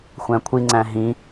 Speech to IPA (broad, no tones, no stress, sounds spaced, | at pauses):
xʷ æ̃ kʷʰ i ŋ͡ǀ æ̃ ɦ ĩ